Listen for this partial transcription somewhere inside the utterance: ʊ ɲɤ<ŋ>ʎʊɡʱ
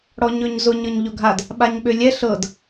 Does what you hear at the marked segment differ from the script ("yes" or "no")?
yes